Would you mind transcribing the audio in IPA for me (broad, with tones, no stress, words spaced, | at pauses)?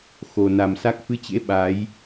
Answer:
xo˨˩na˨˩msa˦˥k̚ fɨ˨˦t͡ɕḛ˧˥ ɓa˨˦j